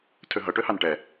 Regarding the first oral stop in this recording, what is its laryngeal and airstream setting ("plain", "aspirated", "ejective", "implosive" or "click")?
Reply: aspirated